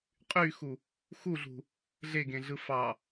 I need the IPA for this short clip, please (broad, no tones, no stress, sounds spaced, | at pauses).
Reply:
qʼ y x u | x u ɮ ṳ | ɮ e ɡ ẽ ɮ ɯ f ɑ